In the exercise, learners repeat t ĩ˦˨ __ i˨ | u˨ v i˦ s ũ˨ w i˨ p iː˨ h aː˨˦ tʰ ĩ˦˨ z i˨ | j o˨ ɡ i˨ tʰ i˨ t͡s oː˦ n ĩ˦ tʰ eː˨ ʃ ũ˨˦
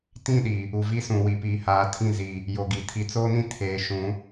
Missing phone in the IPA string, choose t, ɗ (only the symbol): ɗ